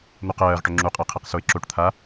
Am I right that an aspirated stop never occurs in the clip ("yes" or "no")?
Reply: no